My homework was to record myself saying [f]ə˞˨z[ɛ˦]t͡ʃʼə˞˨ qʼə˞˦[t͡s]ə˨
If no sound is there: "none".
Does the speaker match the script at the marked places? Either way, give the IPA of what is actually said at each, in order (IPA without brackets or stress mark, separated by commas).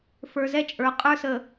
f, ɛ˦, s